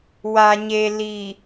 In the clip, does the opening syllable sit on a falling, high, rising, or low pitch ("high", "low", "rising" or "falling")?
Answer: low